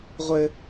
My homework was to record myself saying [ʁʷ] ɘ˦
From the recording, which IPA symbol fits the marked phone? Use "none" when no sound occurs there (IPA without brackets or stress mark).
ʁʷ